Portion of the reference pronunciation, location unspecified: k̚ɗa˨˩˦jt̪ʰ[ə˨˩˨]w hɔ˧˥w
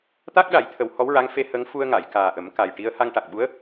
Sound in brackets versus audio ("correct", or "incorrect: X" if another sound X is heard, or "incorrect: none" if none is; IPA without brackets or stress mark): incorrect: ə˨˩˦